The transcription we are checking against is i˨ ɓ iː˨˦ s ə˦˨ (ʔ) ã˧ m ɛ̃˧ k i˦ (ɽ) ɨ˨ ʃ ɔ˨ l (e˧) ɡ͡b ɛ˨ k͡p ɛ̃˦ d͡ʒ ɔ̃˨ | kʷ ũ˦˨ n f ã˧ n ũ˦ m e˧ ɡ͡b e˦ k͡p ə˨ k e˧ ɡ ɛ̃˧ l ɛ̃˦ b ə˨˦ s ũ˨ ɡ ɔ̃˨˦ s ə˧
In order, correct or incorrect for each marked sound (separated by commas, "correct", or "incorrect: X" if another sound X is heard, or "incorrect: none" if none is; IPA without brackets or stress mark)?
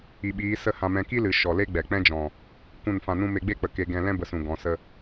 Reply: incorrect: h, incorrect: l, incorrect: e˦